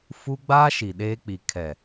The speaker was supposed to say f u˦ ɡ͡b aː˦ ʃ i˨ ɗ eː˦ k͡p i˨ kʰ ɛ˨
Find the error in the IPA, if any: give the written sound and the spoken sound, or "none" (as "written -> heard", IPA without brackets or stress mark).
none